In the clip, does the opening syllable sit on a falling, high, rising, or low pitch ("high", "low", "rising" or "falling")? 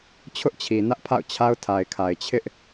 high